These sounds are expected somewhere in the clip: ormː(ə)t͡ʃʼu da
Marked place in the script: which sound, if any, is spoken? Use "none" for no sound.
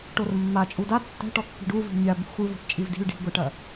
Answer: a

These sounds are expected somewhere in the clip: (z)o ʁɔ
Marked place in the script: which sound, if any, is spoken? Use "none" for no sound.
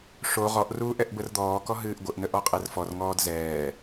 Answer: ʂ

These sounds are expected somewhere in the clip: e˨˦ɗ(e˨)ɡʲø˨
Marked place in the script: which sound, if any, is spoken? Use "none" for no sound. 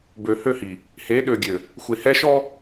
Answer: ø˨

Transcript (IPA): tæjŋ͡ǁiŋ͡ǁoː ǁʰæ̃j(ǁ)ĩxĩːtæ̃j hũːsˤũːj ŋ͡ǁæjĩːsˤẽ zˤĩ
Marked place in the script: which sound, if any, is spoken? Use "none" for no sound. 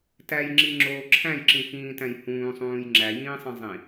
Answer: ǁ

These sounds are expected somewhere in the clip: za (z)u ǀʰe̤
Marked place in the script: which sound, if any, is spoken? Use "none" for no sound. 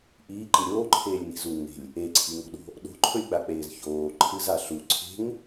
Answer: ɬ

